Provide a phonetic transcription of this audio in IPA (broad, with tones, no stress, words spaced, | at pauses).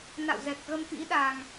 na̰˧˨wzɛ˨˩k̚ ɣə˧mfḭ˧˥ɗa˨˩ŋ